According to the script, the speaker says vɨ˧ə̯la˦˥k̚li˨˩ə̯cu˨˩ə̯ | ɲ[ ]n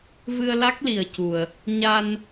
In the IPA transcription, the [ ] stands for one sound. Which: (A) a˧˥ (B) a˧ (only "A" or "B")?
B